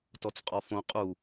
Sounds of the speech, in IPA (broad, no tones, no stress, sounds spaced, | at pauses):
t ɔ t͡s qʼ ɔ f õ qʼ u